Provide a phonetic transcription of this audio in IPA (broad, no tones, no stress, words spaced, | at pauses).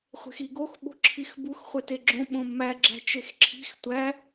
χʷe̤xiɡox ɓo̤ǁʰixbux χʷeteɡ͡ǁõ ɓõmːæɡ͡ǁæ̤ t͡ʃexǁʰi̤x tʷæ